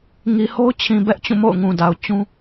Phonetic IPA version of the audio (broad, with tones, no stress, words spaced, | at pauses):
ŋi˨ho˦ʊ̯t͡ɕʰĩ˨ bɛ˦ʔt͡ɕũ˦˨ mo̰˦˨ʊ̯ŋũ˨da˨ʊ̯ t͡ɕũ˦